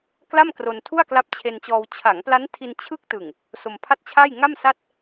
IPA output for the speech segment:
kla˥˩m kro˧ntʰu˥˩a̯kla˦˥p̚ t͡ɕʰe˧nt͡ɕɔː˧w t͡ɕʰa˩˦ŋpla˦˥ntʰi˧n t͡ɕʰɯ˥˩k̚ tɯ˨˩ŋ | so˧mpʰa˥˩t̚t͡ɕʰa˥˩j ŋa˥˩msa˥˩t̚

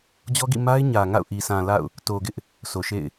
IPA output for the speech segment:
d͡ʑɔ˦ɡḭ˦˨ ma˦ɪ̯ ɲä˨ŋa̰˦˨ʊ̯ʔi˨ sã˨ la̰˦˨ʊ̯ | to˨ɡɪ˦ʔ | so˨ʃḛ˦˨ɪ̯

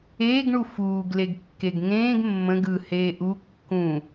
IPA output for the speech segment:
eːɡɳu fuːɡleɡ kːeɡŋẽːɡ mːə̃ɡ ɯ heːʔu kːũ

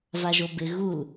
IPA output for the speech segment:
vaʒobɪ ɣul

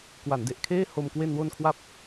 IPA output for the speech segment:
kwa˩˦nde˨˩ʔkʰeː˥˩ho˧m kwe˧nwo˧nkʰwa˦˥p̚

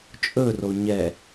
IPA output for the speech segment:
t͡ʃʼɵro ɲɛ

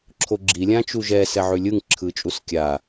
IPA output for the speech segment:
ǁʰoɡ͡ǁi lʲãt͡ʃuʒɛ sɛʕʉlʲɯŋ ǁʰɯt͡ʃʼuskʲa

